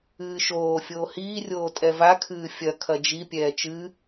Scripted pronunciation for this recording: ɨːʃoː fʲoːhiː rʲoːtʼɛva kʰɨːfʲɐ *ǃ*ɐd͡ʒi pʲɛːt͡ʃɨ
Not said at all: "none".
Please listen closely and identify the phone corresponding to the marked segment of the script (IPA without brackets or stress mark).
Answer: kʰ